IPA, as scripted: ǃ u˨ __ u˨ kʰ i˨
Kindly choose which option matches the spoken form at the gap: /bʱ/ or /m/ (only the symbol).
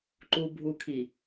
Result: bʱ